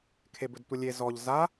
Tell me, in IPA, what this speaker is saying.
kʰebɵdtʷəlʲe zɔʎ za

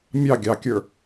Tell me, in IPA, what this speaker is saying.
mʲɑ ɡʲɑkʲə˞

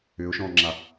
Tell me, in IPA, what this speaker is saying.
ʏʊ̯ʃɔ̃ŋ͡ǁa

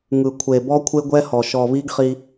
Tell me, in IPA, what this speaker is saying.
ŋɯ˨kʷʰe˨bɔ˦ kʷʰe˦ɡʷɛ˦hɔ˨ ʃɔ˨βi˦ɡχi˦

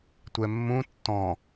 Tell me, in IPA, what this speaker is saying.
tʷɛmːũ tːɔ̃

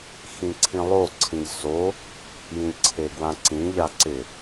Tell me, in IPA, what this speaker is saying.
xĩǀʰĩlˠoǀʰĩʎ so | jĩlʲǀʰeɡwãǀĩ ʎaǀɪ

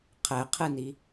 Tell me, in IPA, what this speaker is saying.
qʰɛqʰɨni

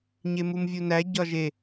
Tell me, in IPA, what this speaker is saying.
ɲemumvʲunæ ɟɒʒe

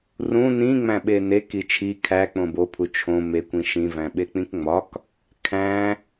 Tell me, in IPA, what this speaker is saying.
rũ nĩ ŋ͡mæ̃ɓenek it͡ʃʰi kʰæ k͡põbo pʰut͡ʃʰõ mekʷ ĩʃĩ væ̃ɓek͡pĩkŋ͡mɒk | kʰæ̃

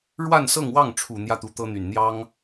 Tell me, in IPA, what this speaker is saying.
ɻwa˥˧nsɤ˥˧ŋwɑ˥˩ŋ ʈ͡ʂʰu˨˩ n̪jä˥˩t̪u˧˥t̪ɤ˥n̪y˨˩n n̪jɑ˥ŋ

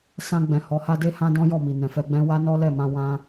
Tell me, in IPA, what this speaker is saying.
sã˧ɡ͡bɛ̃˨ hɔ˨˦ha˦de˦ hã˦dɔ̃˦jɔ˦˨mi˨ nɛ̃˨fɛ˧ɡ͡bɛ̃˦ wa˦nɔ˦ lɛ˦˨mã˧ wã˦

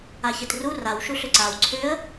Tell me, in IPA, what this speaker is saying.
açetru raw ʃuɬʏǀaw ǀʰʏə̯

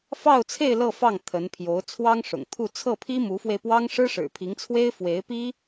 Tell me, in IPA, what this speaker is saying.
fɑ˥˧ʊ̯t͡sʰe˥˧ɪ̯ lɤ˥˧fɑ˥˩ŋ t̪ʰə˧˥npʰjo˧˥ʊ̯ t͡sʰwɑ˥ŋʂʊ̰˨˩ŋt̪ʰu˥˧ t͡sʰɤ˥˩pʰi˥ mu˧˥fwe˧ɪ̯pwɑ˥ŋ ʂɻ̩˥ʂɻ̩˨˩pʰi˧˥ŋt͡sʰwe˥ɪ̯ fwe˧˥ɪ̯pi˥

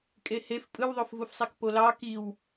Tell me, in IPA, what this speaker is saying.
kʼehef pʼɯwðˤofvufsˤek polɑ kiw

